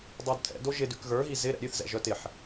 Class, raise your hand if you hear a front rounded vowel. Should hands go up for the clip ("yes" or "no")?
yes